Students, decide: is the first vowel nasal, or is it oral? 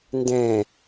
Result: nasal